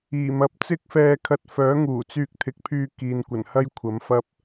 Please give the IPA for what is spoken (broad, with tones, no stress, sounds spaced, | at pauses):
iː˨˩ m ɐ˨˥ p̚ t͡s ɪ˥ k̚ f ɛː˧ kʰ ɐ˧ t̚ f œː˨˥ ŋ uː˨˩ t͡s yː˧ k̚ t̪ʰ ɪ˨˥ k̚ pʰ yː˧ k iː˨ n kʷ ɐ˨˩ n h ɐ˥ j kʷʰ ɐ˨˥ m f ɐ˥ p̚